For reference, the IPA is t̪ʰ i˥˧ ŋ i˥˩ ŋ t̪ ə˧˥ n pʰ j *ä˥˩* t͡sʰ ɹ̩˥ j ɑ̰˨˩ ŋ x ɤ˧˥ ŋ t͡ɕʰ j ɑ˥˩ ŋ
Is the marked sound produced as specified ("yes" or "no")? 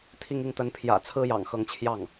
no